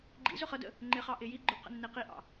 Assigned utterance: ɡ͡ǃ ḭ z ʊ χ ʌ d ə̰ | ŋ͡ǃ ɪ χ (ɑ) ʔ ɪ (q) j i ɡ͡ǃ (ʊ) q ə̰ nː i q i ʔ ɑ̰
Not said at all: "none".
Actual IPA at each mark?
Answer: ɑ, none, ʊ

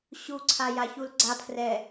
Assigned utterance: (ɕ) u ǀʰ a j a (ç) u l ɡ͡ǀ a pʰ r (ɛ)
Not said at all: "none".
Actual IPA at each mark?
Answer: ɕ, ç, ɛ

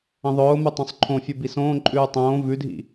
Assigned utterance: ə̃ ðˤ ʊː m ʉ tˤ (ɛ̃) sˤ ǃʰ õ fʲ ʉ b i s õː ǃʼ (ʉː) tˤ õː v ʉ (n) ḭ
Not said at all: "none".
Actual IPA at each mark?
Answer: œ̃, ʉː, dʱ

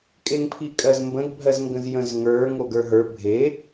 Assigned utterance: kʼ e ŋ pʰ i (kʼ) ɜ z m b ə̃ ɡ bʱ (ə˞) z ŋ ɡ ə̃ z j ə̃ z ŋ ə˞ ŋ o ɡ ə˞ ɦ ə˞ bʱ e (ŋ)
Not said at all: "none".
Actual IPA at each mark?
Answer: kʼ, ɜ, none

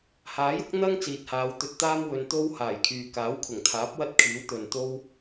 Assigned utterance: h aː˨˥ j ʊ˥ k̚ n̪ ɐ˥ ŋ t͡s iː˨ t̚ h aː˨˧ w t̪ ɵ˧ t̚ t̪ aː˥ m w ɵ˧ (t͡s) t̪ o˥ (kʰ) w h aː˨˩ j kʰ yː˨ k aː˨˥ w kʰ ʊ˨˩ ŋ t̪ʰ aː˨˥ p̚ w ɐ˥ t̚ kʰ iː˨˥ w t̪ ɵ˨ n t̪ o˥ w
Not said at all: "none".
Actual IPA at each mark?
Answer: n, none

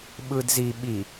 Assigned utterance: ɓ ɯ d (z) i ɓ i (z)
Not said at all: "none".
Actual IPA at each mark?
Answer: z, none

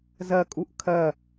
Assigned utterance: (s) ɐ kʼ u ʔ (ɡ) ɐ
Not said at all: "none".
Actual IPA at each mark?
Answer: z, kʰ

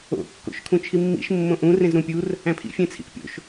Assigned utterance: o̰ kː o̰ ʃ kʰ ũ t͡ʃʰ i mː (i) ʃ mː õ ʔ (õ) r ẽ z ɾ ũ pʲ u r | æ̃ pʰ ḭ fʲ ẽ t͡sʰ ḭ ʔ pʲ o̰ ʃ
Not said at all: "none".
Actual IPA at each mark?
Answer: ḭ, ũ

